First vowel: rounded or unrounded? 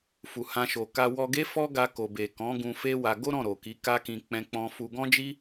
rounded